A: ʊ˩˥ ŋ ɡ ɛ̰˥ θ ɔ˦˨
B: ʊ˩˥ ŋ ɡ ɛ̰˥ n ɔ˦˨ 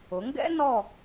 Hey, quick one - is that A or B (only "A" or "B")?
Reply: B